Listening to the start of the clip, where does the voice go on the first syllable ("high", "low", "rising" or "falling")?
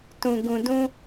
low